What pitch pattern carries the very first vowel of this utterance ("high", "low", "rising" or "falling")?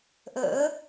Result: rising